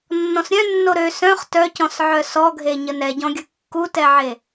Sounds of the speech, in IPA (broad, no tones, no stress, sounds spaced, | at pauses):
nː ɔ̃ s ɾʲ œ̃ nː o ɾ ø s œ̃ χ t œ c ɔ̃ s ʕ œ s ɔ ɡʱ e ɲ ə n ɛ ɟ ɔ̃ ɡʲ ə kː u t ɛ ʕ e